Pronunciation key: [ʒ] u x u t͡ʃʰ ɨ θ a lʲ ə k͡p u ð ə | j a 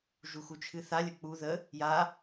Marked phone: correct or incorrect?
correct